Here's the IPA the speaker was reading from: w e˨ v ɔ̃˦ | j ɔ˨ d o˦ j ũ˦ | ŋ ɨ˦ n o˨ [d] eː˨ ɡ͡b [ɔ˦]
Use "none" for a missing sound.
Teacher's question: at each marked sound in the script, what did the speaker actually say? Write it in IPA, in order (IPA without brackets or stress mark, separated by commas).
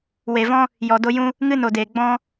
d, ɔ̃˦